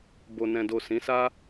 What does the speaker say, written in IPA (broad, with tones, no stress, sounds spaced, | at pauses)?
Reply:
b o˨ n ɛ̃˨ d o˨ s ĩ˨˦ s a˦